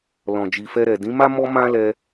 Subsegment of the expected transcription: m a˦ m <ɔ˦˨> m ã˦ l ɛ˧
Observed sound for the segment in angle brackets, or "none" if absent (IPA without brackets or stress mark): ɔ˦